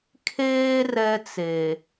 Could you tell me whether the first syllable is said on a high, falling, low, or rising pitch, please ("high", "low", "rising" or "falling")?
high